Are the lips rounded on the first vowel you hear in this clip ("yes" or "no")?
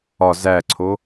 yes